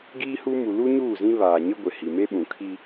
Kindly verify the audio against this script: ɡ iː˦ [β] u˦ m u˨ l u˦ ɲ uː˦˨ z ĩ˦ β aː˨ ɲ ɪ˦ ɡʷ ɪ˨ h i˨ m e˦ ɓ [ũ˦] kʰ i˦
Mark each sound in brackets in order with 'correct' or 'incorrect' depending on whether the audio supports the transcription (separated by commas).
incorrect, incorrect